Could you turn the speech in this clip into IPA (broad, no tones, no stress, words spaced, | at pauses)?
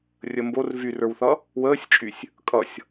rʲəmbor vyrə˞wθʌ | wəːsʲt͡ʃʼysʲ | kʼʌsʲ